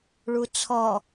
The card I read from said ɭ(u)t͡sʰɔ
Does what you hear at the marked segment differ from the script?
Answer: no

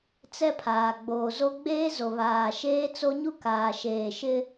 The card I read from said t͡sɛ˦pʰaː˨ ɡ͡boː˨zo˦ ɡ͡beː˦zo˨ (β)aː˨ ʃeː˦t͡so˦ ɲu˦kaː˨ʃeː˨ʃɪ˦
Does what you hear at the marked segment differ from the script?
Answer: no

